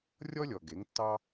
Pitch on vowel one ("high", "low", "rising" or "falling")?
high